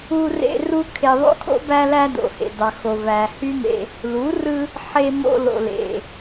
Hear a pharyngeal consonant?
yes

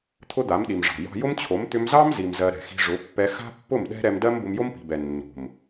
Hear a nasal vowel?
no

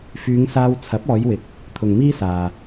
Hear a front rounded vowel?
yes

